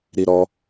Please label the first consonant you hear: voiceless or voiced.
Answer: voiced